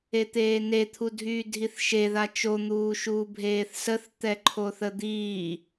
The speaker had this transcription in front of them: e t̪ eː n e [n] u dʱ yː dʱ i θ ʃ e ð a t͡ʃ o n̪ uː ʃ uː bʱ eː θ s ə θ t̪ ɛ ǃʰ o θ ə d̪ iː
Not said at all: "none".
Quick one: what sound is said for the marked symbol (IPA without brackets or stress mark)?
t̪ʰ